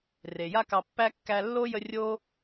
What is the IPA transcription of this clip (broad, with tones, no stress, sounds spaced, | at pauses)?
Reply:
r e˩ j a˦ k ɑ˨ pː æ˥ kː æ˦ lː o˥ j ə˦ rʲ o˥